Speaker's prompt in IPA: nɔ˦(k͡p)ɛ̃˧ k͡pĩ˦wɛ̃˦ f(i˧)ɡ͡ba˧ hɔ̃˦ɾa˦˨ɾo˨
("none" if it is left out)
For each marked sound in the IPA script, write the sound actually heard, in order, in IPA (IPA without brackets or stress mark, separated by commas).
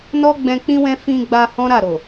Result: ɡ͡b, ĩ˧